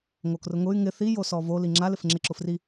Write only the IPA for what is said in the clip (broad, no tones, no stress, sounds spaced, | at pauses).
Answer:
ŋ o k r ʊ ŋ ʊ y̯ ŋ ɪ θ i j o s ɔ v o l i ŋ͡ǁ a l ɪ f ŋ͡ǁ ɪ ǁ ʊ f r i